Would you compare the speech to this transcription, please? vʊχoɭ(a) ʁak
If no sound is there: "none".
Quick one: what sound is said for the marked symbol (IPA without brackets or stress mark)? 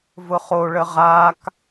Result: ə